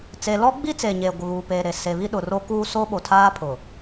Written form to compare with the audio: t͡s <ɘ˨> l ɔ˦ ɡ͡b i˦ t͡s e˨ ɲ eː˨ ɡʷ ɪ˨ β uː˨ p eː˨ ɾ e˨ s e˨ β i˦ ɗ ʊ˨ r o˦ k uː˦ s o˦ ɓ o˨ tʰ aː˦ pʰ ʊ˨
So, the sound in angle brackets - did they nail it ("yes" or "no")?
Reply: no